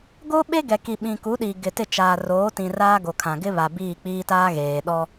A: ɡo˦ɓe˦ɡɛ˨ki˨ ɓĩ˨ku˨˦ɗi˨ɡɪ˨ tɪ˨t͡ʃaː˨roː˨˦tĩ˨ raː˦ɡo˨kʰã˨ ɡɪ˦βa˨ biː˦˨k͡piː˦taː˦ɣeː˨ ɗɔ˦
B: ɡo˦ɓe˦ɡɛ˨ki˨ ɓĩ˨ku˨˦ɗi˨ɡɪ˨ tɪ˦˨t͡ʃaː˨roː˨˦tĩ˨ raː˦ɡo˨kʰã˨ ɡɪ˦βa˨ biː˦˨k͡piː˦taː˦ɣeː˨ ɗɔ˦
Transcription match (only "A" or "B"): B